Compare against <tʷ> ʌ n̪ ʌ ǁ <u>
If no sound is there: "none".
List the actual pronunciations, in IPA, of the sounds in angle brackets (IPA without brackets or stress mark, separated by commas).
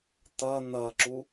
t̪, u